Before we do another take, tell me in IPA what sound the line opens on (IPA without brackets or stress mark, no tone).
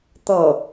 t̪